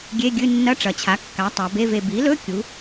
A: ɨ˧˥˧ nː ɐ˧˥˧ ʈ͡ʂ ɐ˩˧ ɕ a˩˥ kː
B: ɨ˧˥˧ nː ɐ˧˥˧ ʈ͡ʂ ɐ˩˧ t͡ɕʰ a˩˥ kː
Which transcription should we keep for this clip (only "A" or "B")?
B